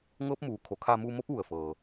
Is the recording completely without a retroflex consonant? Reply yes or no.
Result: yes